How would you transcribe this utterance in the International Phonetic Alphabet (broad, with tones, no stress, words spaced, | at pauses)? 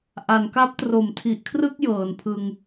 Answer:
ʔa˩˦nka˦˥p̚ tro˨˩mtʰi˨˩ʔkʰrɯ˥˩k̚ jɤː˩˦npʰɯ˧ŋ